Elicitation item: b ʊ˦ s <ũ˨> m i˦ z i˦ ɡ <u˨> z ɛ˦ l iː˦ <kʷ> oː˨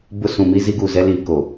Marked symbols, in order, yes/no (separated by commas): yes, yes, no